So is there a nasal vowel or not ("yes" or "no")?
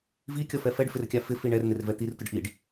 no